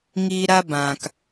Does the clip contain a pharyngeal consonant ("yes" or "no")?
no